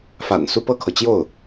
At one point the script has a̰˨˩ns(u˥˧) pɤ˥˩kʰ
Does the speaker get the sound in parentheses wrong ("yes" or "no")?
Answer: no